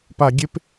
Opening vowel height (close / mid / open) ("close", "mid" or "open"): open